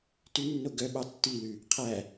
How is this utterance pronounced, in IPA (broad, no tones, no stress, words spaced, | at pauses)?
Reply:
tʉnːo ɡœ ɓɑtːilʉ | qʰæ